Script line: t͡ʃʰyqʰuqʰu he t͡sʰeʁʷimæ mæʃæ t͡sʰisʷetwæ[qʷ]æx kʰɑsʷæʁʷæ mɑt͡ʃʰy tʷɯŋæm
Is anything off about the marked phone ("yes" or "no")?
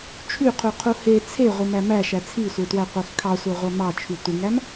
no